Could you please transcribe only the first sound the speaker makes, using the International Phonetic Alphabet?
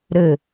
ɾ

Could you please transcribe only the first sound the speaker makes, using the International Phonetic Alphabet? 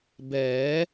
b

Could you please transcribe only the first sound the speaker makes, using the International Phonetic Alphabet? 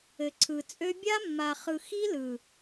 ɘ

